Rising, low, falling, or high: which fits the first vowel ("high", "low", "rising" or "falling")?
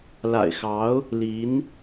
low